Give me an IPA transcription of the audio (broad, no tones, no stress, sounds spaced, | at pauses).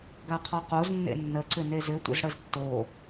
ɡ a qʰ ɔ q o z nː ḛ nː ə ǀ ʏ n e z ʏ tʷ ə̰ z ɽ ə z tː o